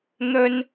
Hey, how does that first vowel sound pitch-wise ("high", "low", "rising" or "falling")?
high